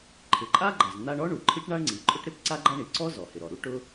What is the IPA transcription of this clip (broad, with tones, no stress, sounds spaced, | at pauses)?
ǃʰ ɪ˩ ǃʼ a˥ ɡ͡ǃ a˩ z n̪ a˥ ɳ ɔ˥ ɳ u˩ ǃʰ i˥ ʈ ɳ a˥ ɳ ŋ͡ǀ i˩ ǃʼ ʊ˥ ʈ ɾ ɪ˥ p ǀ a˥ ɡ͡ǃ a˥ ɳ i˩ ǀ ɔ˥ z ɔ˩ h ɪ˩ ɾ ɔ˩ ɾ u˥ ʈ ʊ˥